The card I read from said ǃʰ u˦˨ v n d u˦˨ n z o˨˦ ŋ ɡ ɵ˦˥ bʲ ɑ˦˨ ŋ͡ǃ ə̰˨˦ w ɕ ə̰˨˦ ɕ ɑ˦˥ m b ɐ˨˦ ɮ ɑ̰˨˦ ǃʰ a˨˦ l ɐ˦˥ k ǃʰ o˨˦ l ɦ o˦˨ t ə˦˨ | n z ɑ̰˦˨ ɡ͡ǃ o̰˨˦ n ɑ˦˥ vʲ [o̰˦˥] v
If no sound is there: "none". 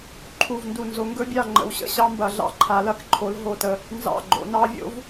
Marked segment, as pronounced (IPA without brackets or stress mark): o̰˦˥